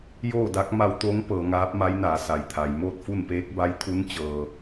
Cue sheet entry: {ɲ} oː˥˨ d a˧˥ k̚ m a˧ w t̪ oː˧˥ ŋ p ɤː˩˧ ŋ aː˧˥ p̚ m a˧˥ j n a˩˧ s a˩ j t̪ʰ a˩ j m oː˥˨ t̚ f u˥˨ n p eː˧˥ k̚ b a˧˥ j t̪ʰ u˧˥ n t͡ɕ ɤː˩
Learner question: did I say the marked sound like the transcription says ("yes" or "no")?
no